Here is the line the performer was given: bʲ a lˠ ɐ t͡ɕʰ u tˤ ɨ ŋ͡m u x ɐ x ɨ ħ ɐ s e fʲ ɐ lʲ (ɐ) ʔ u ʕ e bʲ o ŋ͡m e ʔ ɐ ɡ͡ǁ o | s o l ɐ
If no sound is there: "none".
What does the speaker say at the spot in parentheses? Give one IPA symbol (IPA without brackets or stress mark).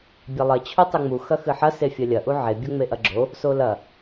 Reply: ɐ